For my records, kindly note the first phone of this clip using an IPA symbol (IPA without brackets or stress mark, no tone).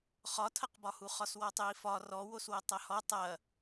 χ